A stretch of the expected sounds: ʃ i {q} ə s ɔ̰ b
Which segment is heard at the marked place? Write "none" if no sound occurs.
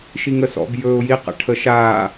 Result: ŋ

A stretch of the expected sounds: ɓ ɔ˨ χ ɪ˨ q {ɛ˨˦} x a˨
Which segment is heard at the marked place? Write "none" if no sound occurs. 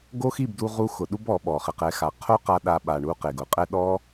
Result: ɛ˨˦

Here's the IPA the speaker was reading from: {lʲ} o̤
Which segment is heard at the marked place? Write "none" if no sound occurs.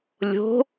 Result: lʲ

